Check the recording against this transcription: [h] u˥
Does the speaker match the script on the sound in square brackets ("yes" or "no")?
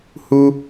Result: yes